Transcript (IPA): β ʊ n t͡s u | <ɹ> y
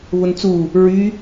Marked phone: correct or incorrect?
correct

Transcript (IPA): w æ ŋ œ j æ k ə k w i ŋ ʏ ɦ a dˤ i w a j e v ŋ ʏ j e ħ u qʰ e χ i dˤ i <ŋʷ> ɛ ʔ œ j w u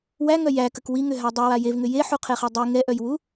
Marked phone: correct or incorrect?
incorrect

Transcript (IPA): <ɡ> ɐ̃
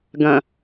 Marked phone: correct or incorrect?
correct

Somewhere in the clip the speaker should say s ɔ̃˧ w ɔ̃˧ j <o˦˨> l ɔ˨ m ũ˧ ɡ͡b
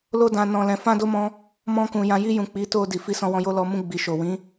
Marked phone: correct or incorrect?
incorrect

